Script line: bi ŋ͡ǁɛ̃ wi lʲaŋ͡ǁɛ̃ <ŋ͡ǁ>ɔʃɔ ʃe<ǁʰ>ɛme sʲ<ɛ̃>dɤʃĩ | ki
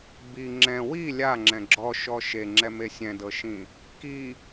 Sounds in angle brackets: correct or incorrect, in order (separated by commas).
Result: incorrect, incorrect, correct